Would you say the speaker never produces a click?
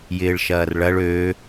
yes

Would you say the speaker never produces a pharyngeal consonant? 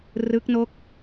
yes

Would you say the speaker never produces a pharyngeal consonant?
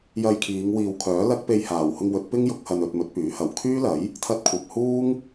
yes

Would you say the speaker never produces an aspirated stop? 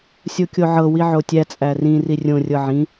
yes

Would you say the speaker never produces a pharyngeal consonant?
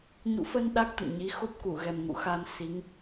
yes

